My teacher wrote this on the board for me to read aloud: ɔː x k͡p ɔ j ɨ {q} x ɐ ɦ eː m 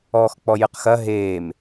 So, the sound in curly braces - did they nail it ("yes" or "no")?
yes